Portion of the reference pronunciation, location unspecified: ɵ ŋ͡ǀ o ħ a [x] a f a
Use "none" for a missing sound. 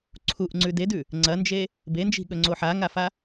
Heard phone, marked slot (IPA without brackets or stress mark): ŋ